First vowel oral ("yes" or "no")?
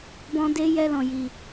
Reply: no